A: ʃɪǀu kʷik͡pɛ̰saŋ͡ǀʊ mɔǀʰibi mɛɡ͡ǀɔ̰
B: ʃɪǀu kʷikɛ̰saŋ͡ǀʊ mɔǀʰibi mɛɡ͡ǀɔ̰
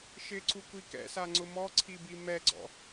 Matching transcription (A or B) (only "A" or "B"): B